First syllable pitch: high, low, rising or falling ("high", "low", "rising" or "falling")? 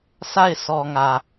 falling